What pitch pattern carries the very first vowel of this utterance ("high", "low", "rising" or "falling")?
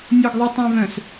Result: low